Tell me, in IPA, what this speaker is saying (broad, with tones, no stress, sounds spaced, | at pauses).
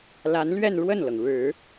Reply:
l a˧˥ n l ɥ ɛ˥˧ n ɻ w ə˥˩ n l ɤ˩ ŋ ɻ ɻ̩˨˩˦